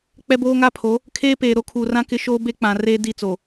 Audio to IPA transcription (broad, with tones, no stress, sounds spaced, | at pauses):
k͡p ɛ˦ b oː˦ ŋ a˦ pʰ o˨˦ | kʰ eː˦ p eː˨ ɾ o˦ kʰ uː˨ r ã˦ k ɪ˦ ʃ oː˦ b e˦ k͡p ã˨ r eː˦ d i˦˨ t͡s o˨